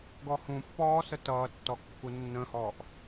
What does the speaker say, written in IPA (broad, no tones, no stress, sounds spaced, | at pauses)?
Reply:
ɡ ɔ h ũ pː ɔː s ə t ʌː tː ɔ kː u nː ə̃ h ɔː ʔ